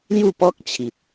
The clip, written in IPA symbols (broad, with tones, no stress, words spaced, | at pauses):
lju˥˧pɔ˦k̚t͡ɕʰi˨t̚